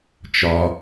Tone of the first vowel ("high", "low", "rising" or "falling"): low